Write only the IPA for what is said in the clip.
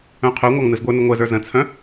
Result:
œ̃ qʰ œ ŋʷ ɑ ŋ n ɯ z ɡʷ ə˞ n ə ŋʷ ɛ z ə˞ z ə̃ t͡sʰ œ̃

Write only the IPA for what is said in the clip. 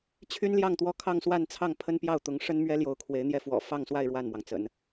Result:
t͡ɕʰ y˥ n l j ɑ˥˩ ŋ t̪ w ɔ˥ kʰ ɑ˥˧ ŋ s w a˥˧ n t͡sʰ ɑ˥˩ ŋ pʰ ə˥ n p j ɑ˥˩ ʊ̯ t̪ ʊ˧˥ ŋ ʂ ə˥ n m ɥ ɛ˥ l j o˧˥ ʊ̯ kʰ w e˧˥ ɪ̯ n̪ j ɛ˥˩ f w ɔ̰˨˩ f ɑ˥˧ ŋ s w a˥˧ ɪ̯ ɻ w a˥˩ n m w ɑ˩ ŋ t͡s ə̰˨˩˦ n

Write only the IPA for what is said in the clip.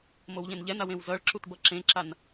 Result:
m o w ʎ ẽ n ʎ ɛ n a w ẽ w z ʌ ɭ ǁ u t b ʌ ǁ ẽ ǁ a n

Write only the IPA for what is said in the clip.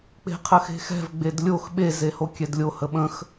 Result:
k͡p e̤ qʰ ə x e̤ x ɛ̤ v ɡ͡b e d lʲ o x ɓ e z e h o kʲ ɛ d lʲ o h ə ɓ ə̃ x

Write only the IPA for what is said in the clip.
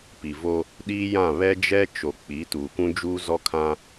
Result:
p i˨ v o˦ | ɗ iː˦ j ã˦˨ β ɛ˦ d͡ʒ ɛ˦ t͡ʃ o˨ k͡p i˨˦ t uː˨ kʷ ũ˦ d͡ʒ uː˦ z ɔ˦ kʰ ã˦

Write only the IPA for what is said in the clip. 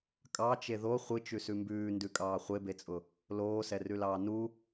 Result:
kʼ ɑ t͡ʃ e ð o χʷ ɨ t͡ʃ ʉ s ʉ m b ʉː n d ʉ kʼ ɑː χʷ e b e t͡sʼ ʊ | l oː s ɛ r ʉ l ɑː n u

